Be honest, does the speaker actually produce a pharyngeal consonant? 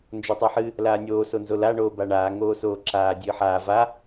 yes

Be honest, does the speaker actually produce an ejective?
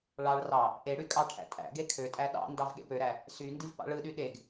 yes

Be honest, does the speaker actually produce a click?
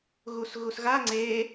yes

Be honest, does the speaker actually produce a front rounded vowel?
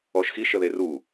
no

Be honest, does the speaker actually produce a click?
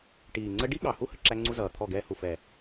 yes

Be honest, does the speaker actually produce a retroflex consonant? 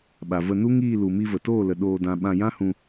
no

